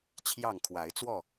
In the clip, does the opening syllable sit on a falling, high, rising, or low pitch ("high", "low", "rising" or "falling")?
falling